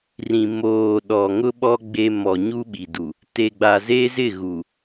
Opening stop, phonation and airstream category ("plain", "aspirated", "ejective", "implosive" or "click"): implosive